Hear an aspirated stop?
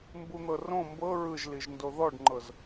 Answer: no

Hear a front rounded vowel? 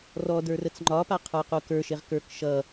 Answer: no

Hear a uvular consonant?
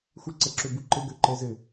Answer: no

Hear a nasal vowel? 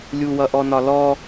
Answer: no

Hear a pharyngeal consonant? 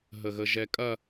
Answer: no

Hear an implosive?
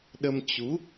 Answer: yes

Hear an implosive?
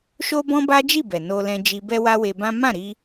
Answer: no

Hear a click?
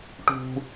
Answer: no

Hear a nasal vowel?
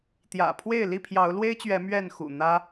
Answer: no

